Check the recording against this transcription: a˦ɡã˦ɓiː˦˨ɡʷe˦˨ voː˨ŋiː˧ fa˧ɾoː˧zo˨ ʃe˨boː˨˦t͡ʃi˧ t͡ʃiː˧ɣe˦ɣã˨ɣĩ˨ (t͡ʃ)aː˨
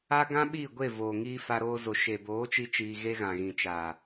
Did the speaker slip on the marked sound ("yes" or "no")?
no